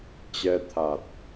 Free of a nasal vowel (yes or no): yes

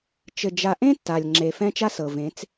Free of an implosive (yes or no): yes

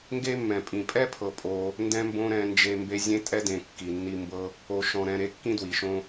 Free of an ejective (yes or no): no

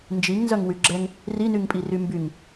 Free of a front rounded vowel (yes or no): no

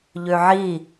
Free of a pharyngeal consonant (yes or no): no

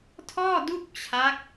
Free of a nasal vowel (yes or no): yes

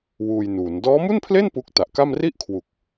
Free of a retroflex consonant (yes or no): yes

